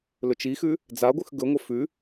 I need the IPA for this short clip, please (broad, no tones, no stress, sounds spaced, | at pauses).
l ɵ t͡ʃ i x ʉ | d͡z a ɡʷ ɨ x ɡ ɵ ŋʷ ɐ f ʉ